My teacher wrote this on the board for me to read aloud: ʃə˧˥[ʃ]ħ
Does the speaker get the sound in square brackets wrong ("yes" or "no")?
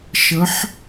yes